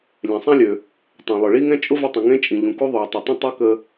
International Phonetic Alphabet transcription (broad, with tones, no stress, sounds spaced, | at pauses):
lʲ ɛ̃˩ sˤ ã˥ lʲ ø˩ | tˤ ẽ˩ lˠ ʊ˩ ɭ i˥ ŋ ɛ̃˥ t͡ʃʼ ʊ˥ v ə˧ tˤ ə̃˩ ŋ ẽ˥ t͡ʃʼ ĩ˩ ʎ ũ˩ k u˥ ðˤ ø˩ u̯ tˤ ə˩ tˤ ə̃˥ tˤ ø˥ k ə˧